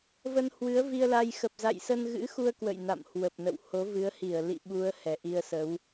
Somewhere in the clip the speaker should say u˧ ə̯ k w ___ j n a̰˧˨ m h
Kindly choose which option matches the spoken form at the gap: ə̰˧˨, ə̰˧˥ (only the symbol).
ə̰˧˨